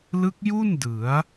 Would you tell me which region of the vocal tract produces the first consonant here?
tongue tip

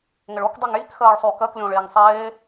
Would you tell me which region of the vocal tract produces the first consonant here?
velum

